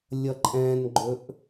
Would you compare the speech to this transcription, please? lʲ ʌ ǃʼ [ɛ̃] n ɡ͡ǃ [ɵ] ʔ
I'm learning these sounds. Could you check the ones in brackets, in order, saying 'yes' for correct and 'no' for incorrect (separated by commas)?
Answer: yes, yes